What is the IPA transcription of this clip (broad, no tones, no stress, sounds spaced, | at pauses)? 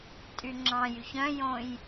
tʼ y ŋ͡ǁ ɑ̃ j y ç œ̃ j õ j